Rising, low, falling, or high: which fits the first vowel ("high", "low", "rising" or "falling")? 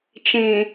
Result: low